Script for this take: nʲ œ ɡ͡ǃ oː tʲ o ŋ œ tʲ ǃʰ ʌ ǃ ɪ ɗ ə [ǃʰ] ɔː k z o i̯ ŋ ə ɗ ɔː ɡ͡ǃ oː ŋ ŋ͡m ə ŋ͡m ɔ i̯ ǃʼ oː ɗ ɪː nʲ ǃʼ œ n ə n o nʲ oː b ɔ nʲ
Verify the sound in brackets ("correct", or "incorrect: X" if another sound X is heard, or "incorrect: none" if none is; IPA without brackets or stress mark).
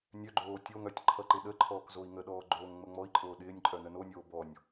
correct